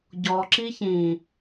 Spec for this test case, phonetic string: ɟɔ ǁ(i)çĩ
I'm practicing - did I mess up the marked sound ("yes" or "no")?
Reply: no